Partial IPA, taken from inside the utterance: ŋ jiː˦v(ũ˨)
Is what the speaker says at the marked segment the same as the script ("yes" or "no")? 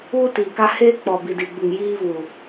no